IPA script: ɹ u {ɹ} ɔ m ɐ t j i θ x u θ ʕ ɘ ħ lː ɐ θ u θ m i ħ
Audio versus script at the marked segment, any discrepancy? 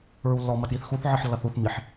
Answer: yes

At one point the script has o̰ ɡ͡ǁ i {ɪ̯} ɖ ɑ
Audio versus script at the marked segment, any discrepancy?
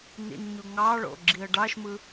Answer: yes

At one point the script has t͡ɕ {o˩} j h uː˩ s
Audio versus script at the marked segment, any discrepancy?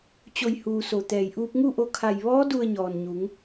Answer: no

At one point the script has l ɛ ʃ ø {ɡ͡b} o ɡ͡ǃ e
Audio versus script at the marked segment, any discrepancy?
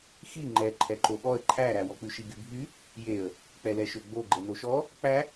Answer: no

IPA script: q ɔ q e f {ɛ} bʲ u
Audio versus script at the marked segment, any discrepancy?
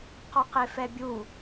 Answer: no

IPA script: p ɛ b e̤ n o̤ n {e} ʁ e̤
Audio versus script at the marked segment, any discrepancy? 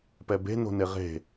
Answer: no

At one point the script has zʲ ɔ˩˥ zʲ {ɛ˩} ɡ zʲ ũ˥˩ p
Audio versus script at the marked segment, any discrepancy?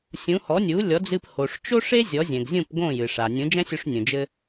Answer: yes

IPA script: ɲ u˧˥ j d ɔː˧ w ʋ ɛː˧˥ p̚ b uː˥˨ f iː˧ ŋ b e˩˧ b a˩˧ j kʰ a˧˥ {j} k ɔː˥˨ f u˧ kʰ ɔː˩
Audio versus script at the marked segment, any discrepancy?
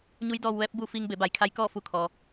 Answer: no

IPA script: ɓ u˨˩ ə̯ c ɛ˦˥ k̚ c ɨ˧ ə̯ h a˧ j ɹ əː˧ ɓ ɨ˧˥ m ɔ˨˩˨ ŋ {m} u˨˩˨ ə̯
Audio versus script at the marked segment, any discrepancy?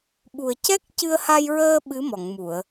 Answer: no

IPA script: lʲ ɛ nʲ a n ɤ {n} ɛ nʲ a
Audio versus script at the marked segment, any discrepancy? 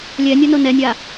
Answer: no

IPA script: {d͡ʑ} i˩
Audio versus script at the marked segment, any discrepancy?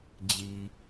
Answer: no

